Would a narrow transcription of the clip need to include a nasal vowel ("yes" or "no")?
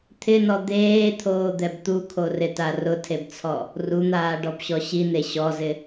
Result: no